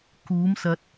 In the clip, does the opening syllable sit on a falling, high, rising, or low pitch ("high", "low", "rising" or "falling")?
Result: rising